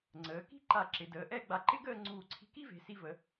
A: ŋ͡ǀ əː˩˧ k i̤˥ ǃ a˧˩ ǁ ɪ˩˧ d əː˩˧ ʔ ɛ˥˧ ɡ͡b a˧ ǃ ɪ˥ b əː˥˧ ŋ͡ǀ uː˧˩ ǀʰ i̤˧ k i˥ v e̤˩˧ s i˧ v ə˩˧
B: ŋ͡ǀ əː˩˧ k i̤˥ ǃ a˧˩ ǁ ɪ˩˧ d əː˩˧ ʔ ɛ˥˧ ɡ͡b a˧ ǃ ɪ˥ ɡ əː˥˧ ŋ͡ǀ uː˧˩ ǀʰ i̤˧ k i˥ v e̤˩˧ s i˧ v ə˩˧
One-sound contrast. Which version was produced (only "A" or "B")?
B